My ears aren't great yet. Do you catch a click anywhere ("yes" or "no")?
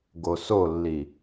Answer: no